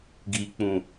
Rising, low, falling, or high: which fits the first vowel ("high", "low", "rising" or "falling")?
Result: low